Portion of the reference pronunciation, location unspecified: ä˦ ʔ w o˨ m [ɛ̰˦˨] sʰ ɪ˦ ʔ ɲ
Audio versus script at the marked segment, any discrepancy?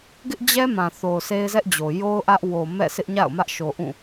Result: no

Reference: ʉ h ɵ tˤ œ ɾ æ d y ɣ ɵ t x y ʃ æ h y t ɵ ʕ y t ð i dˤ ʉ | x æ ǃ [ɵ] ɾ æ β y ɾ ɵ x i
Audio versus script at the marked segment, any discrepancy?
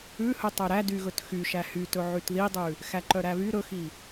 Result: yes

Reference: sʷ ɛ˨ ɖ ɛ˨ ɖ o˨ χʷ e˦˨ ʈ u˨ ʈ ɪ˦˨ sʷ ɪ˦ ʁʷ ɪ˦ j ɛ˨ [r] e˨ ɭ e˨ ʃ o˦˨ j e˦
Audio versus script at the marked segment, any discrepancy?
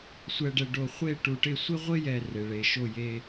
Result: no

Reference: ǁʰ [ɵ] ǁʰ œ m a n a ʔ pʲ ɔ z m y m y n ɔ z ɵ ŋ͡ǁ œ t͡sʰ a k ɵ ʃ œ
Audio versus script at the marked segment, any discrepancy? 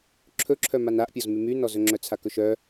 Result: no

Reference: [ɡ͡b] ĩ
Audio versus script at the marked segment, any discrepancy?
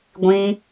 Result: yes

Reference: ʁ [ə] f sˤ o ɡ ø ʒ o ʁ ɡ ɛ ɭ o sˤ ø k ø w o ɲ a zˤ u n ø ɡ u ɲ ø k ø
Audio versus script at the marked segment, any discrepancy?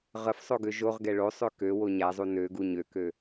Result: no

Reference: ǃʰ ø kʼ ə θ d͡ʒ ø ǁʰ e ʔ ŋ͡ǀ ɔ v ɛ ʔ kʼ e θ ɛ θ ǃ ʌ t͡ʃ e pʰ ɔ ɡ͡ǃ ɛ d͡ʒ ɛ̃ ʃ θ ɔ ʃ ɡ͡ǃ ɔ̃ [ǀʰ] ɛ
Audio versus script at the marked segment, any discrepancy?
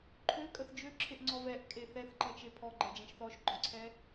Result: no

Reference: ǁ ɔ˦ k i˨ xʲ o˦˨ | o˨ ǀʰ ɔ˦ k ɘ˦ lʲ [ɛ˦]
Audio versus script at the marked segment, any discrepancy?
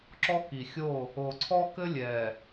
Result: yes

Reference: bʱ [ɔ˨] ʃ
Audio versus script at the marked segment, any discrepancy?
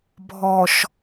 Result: no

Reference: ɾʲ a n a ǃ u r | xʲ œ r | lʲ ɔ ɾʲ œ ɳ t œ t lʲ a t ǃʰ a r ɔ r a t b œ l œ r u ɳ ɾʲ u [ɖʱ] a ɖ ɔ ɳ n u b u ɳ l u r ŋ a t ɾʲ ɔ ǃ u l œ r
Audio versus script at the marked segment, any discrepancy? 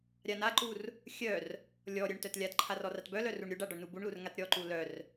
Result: yes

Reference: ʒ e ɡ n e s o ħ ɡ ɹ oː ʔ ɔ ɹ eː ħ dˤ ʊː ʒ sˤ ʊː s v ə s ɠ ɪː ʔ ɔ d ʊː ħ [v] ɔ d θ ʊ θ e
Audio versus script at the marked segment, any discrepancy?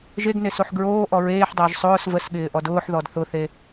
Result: yes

